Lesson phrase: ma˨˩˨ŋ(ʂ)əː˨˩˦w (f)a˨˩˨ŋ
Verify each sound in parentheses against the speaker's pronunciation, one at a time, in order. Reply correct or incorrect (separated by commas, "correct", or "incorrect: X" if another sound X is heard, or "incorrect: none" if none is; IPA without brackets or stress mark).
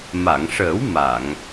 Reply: correct, incorrect: m